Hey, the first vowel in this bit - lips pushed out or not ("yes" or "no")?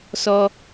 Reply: yes